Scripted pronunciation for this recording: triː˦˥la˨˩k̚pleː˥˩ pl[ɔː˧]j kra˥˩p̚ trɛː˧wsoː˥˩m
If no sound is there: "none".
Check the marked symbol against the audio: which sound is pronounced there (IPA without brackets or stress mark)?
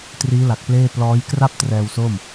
ɔː˦˥